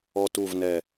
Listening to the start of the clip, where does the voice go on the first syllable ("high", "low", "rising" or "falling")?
low